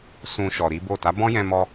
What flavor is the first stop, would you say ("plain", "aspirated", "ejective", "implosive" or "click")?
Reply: plain